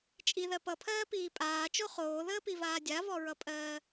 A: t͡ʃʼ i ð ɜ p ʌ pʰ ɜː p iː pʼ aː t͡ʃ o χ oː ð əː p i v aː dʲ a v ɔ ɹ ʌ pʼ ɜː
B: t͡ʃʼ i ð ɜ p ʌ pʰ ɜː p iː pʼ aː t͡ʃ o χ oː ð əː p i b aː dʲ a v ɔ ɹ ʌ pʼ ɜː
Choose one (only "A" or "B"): A